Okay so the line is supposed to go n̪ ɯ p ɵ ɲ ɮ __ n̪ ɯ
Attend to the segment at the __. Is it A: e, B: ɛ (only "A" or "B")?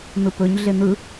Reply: A